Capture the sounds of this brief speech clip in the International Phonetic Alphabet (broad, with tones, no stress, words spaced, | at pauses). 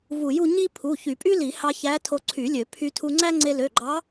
vu˨˩˦ju˧ ɲi˥ pʰu˩˧˩ çy˨˩˦pʼy˥li˨˩˦ hɑ˧ çæ˧˥ tʰo˧ǀʰy˨˩˦lʲø˨˩˦ pʰy˧tʰu˧ŋ͡ǀæ˥ ŋ͡ǀe˧lø˩˧˩ɡ͡ǃɑ˧˥